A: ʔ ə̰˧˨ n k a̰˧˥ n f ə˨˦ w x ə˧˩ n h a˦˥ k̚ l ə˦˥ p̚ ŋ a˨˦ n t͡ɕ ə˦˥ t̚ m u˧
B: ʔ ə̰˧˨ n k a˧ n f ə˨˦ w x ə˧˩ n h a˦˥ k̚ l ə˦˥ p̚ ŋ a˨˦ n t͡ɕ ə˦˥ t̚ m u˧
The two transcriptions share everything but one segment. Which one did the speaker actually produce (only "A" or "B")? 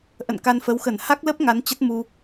B